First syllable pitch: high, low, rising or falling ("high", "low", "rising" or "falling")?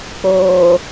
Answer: low